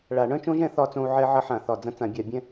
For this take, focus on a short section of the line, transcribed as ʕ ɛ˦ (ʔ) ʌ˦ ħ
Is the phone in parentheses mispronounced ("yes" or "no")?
yes